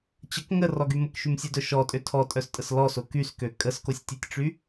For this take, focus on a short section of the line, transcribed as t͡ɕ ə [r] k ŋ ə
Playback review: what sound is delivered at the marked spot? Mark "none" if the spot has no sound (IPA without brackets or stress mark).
none